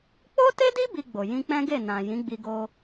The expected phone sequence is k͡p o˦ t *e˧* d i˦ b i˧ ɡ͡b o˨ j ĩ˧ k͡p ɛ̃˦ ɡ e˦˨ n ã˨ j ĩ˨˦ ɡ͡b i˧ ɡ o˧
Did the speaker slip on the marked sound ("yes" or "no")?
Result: yes